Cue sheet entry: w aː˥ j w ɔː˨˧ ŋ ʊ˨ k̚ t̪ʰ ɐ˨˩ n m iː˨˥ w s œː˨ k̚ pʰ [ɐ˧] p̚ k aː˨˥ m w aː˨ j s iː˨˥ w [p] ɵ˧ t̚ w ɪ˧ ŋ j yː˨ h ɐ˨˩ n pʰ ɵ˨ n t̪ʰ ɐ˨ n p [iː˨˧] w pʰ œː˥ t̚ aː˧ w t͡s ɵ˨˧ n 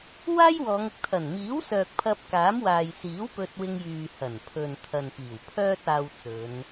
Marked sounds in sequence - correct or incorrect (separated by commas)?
correct, correct, incorrect